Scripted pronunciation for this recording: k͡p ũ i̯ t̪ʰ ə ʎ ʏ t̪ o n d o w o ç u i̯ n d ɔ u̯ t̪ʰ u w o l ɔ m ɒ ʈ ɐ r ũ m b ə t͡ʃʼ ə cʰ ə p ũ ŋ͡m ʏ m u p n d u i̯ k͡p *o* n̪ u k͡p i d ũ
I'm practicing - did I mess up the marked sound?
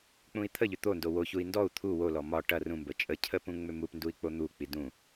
no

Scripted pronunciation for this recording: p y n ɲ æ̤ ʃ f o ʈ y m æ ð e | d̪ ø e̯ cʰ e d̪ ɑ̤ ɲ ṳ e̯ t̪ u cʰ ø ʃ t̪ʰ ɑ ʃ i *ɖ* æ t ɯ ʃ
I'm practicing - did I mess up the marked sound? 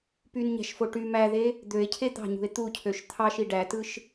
no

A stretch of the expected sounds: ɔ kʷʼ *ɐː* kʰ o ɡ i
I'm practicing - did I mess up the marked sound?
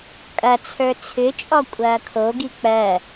no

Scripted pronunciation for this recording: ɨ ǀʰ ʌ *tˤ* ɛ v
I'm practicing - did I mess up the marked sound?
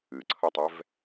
no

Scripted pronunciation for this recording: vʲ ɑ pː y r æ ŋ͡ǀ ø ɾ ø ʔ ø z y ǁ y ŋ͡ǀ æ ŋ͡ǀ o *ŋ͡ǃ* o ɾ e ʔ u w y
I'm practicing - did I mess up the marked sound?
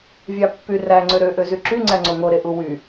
yes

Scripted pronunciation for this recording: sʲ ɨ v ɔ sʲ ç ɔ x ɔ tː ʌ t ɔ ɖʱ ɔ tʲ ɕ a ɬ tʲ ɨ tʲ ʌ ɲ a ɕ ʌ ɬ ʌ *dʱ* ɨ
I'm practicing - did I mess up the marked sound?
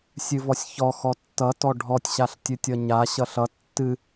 yes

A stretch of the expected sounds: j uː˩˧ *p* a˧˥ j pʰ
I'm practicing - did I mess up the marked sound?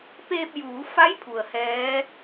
yes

